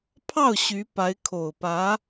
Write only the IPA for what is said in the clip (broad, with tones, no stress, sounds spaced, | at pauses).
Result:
pʰ ɑ˥˩ ʊ̯ ɕ y˧˥ p a˧˥ ɪ̯ kʰ o˨˩ ʊ̯ p ä˧˥